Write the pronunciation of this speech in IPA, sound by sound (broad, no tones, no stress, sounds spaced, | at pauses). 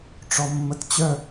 ʈ͡ʂ ɔ mː ə t t͡ɕ œ